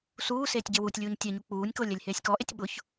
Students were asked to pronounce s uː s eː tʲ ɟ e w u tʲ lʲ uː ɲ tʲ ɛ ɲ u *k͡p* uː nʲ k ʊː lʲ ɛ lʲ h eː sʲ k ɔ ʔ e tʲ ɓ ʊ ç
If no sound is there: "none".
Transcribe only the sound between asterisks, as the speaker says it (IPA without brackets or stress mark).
k͡p